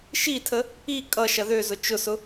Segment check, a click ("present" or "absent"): absent